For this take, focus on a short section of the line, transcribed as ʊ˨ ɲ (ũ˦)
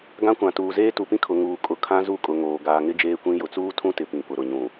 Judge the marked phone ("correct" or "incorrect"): incorrect